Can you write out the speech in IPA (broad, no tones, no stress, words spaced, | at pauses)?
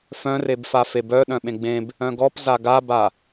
fœ̃rebfa febœ ɗœ̃ɓẽɡ͡bẽb | œ̃ɡɔp zaɡaba